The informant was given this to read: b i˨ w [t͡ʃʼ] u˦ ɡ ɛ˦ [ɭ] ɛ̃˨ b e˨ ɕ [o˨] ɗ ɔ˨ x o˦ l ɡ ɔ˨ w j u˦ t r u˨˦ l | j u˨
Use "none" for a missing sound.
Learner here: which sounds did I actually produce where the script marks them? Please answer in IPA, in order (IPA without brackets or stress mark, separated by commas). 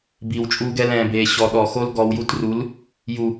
t͡ʃʼ, l, ɔ˨